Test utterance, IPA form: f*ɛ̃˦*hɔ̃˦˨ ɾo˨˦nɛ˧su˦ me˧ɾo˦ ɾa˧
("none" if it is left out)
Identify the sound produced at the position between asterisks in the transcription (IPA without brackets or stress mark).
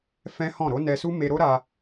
ɛ̃˦